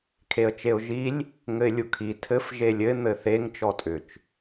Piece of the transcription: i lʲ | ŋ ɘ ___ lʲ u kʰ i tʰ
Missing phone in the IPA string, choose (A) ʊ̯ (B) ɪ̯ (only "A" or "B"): B